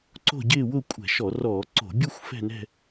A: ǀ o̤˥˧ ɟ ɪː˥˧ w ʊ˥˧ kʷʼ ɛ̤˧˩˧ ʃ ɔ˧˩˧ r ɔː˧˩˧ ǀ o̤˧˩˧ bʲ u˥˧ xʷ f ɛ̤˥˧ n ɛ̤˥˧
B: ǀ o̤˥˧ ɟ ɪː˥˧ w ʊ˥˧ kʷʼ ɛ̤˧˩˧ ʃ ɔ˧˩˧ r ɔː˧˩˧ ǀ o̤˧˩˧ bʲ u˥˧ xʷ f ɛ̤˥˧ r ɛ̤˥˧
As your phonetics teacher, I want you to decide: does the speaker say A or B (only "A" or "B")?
A